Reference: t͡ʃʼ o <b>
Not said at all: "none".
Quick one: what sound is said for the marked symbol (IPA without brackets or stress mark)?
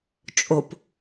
p